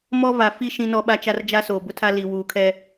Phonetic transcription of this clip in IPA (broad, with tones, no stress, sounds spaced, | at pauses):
m ɔ˦ v a˨ f i˦ ʃ ĩ˦ n ɔ˦ ɓ a˦ t͡ʃ a˦ r d͡ʒ a˦ s oː˨ b ʊ˦ tʰ a˦ l i˨ w uː˨ kʰ ɛ˦